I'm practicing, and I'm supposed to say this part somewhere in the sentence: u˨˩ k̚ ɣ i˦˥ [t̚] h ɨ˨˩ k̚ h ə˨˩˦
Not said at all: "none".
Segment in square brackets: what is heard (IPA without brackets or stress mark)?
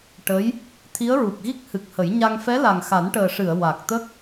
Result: k̚